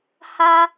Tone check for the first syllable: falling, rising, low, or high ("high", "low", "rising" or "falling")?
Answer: high